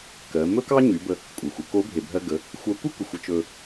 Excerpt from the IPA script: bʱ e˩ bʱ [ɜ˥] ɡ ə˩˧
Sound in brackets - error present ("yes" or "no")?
yes